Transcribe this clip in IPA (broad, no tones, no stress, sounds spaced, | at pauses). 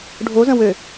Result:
ɖʱ o z ə̃ w ø